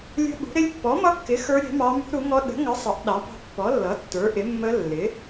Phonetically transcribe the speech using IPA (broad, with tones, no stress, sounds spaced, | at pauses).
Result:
lʲ ə̤˦˥ ɓ ṳ˨˥ ɾ ɪ˦˥ lʲ pː ɔ˨˥ m ʌ˦˥ kː ɪ˨˥ x ə˞˦˥ ɾʲ ɛ̤˨˥ m ɑ˦˥ m ṳ˦˥ ɾ u˨˥ ŋ ɔ˦˥ ɗ ə̤˨˥ ŋ ʌ˨˥ sˤ ʌ˨˥ ʔ ɗ ɑ˨˥ p ɑ̤˦˥ pː ɔ˨˥ lː ʌ˨˥ tː ə˞˨˥ ʔ ɪ˨˥ mː ə˦˥ lː ɪ˨˥